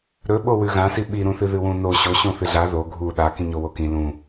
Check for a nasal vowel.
present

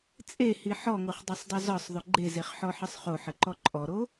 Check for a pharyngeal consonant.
present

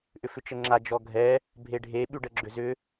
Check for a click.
present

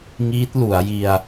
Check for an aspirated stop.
absent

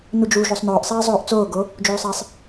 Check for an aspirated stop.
absent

